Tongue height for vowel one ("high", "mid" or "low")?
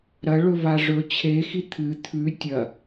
low